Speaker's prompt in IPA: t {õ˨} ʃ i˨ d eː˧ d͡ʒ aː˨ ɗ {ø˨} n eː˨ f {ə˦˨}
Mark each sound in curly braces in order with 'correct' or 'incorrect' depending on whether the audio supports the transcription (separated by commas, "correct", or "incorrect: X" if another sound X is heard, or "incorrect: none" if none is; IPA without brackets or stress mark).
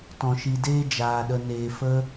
incorrect: ɔ̃˨, incorrect: ə˨, incorrect: ə˧